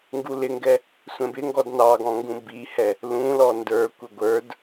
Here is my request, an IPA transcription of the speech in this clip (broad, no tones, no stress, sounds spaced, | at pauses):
ŋ ɡ u l ɪ ŋ ɡ ɛ | sʷ ɛ̃ b ɪ ŋ ɡ ɔ d n ɑ ɡ ɔ̃ ŋ ɡ ũ b i h ɛ | l ũ l ɔ n d ə˞ kʷ ɪ ɡʷ ə˞ d